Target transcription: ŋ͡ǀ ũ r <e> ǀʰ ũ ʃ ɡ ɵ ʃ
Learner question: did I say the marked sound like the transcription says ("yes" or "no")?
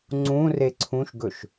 yes